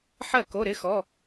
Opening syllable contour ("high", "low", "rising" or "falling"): falling